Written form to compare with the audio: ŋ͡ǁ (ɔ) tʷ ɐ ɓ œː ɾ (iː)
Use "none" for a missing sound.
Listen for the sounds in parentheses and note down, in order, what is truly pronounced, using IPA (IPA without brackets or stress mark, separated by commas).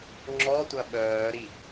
ɔ, i